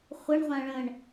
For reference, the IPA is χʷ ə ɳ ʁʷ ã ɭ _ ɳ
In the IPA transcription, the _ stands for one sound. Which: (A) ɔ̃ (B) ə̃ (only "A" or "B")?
B